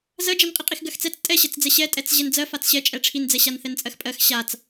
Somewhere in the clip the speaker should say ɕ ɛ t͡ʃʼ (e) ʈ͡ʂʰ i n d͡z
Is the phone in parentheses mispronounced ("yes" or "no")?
yes